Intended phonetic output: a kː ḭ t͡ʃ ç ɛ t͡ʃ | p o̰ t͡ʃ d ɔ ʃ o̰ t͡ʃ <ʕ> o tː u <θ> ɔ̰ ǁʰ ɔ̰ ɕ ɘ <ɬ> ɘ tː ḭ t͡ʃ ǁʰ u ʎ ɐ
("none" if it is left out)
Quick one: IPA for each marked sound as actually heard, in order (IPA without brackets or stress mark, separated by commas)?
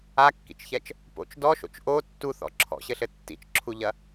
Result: ʔ, θ, ɬ